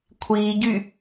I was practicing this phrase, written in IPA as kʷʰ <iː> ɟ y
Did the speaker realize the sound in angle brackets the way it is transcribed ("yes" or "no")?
yes